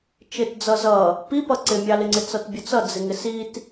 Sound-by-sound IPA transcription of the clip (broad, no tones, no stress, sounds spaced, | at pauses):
t͡ʃ ɪ t d͡z ʌ z ʌ | p i p ʌ ǀ ɪ mʲ ɑ l ɪ ŋ͡ǀ ɪ t͡s ʌ t bʲ ʊ t͡s ʌ d͡z ɪ ŋ ɪ s i t